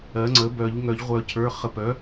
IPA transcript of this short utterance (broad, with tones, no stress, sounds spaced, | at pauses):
ɜ˩˥ ŋ͡ǀ ə˩˥ b œ˨˩˦ ʎ ŋ œ˨˩˦ ʎ ʁʷ œ˨˩˦ cʰ ə˞˩˧˩ χ ə˨˩˦ p œ˩˥